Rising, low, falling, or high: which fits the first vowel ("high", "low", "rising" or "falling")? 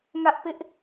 high